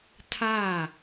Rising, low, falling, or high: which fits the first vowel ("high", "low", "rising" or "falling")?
falling